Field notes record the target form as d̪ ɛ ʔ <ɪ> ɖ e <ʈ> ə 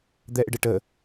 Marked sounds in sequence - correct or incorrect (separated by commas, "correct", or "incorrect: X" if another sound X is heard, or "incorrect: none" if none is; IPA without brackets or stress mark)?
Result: correct, correct